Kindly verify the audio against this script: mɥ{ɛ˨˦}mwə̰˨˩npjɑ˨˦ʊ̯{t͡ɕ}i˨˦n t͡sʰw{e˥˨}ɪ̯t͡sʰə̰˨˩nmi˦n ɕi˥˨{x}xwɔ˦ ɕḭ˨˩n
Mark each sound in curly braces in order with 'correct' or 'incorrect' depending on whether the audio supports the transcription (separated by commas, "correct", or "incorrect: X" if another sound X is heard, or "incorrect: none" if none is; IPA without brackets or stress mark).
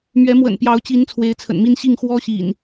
correct, correct, incorrect: e˨˦, incorrect: ŋ